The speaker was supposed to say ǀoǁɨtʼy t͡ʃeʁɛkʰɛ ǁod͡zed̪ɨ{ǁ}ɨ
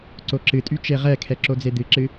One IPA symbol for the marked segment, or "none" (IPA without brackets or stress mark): ǁ